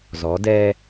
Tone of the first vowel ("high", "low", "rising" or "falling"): rising